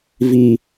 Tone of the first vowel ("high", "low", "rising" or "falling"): high